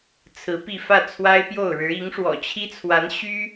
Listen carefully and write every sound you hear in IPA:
t͡sʰɹ̩˧˥pi˥˧ fä˥˩t͡sʰwa˥ɪ̯pjo˥˩ʊ̯ɻɻ̩˧˥ i˧˥ŋʂwɔ̰˨˩t͡ɕʰi˥t͡sʰwa˧˥n ɕy˥

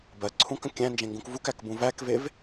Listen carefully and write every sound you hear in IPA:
bɜǀʰũkə̃ kʲæ̃nd͡ʒẽŋɡũk vukækbũ vækvev

